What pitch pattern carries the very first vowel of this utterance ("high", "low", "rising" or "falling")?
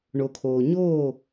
low